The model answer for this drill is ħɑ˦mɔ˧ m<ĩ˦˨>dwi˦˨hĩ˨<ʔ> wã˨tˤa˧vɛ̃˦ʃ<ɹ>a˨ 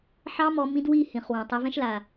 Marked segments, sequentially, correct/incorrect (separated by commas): incorrect, incorrect, incorrect